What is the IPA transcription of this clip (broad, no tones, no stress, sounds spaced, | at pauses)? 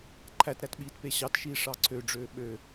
ǃʰ æ t ɾ æ t ɓ iː t p e ɕ ɑ t ʃ iː ʂ ɑ ǀʰ ø ɖ͡ʐ øː ɓ ø